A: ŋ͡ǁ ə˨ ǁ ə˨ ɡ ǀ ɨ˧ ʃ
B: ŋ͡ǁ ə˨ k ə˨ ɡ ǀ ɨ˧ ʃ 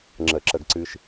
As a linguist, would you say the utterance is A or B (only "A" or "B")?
A